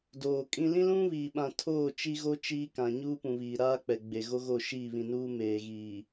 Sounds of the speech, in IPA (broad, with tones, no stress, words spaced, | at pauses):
doː˨kʼĩ˦ lĩ˦lũ˦βiː˨ɓã˨ tʰoː˦˨ t͡ʃi˦ɣo˦ t͡ʃiː˦kã˨ ɲuː˦pũ˨βiː˨ ɾaː˦k͡pɛ˨ɡ͡be˨ɣo˦ ɣo˦˨ʃiː˦˨βĩ˨nuː˦ meː˨ɣiː˨